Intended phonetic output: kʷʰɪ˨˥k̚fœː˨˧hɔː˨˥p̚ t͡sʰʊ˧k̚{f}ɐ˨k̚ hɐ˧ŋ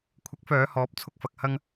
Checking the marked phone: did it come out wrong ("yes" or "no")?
no